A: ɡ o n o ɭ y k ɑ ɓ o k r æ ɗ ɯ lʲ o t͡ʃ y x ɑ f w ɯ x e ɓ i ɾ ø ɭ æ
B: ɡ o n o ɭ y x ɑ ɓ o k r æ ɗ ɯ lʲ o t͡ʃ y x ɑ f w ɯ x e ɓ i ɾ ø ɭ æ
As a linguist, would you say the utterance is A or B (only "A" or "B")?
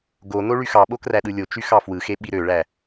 B